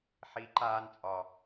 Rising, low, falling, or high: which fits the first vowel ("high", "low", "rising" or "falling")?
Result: rising